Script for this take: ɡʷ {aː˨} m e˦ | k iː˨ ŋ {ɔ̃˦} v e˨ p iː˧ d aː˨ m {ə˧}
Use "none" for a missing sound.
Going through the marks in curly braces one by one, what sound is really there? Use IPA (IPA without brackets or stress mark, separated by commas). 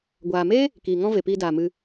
aː˨, ɔ̃˦, ɨ˧